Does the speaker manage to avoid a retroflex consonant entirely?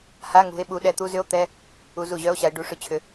no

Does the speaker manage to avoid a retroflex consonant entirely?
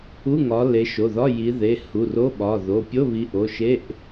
yes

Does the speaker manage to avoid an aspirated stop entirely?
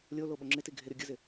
yes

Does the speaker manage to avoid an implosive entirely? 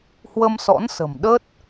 no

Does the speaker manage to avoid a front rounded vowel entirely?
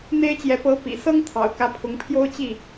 yes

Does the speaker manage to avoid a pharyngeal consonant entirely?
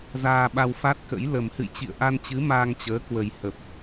yes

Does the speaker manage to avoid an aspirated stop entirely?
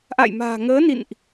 yes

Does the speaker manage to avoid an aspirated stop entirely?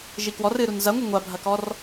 yes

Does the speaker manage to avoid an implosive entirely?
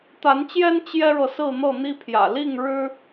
yes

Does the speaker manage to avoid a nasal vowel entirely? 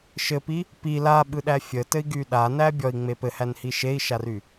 yes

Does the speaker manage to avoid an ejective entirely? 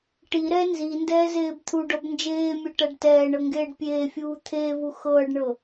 yes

